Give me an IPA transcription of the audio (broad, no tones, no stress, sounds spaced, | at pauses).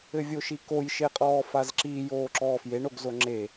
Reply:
ɘ vʲ o ʃ i k o j ʃ e qʼ ɔː f a z ǁ i j oː ǁ ɔː f j e ɳ o ɡ z o ŋ͡ǁ e